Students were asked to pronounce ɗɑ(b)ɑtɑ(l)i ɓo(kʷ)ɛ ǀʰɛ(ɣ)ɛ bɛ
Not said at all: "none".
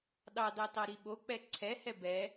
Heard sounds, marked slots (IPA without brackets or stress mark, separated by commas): d, ɾ, k͡p, h